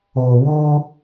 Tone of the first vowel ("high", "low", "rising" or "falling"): low